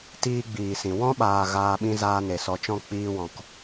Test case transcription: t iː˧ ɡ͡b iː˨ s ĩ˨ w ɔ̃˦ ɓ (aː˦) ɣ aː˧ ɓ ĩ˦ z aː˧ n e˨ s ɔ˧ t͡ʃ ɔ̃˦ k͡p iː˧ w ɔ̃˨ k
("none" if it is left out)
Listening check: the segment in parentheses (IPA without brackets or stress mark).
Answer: aː˨